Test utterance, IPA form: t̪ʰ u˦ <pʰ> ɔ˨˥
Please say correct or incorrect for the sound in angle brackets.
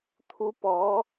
incorrect